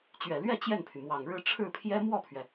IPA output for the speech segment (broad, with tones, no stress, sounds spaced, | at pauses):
t͡ɕ ɥ ɛ˨˩ l ɥ ɛ˥˧ t͡ɕ j ɛ˥˩ n pʰ y˩ m w ɑ˨˩ ŋ ɻ ɻ̩˥˧ ʈ͡ʂʰ ɻ̩˥˩ pʰ j ɛ˥ m w ɔ˥˩ pʰ ɥ ɛ˩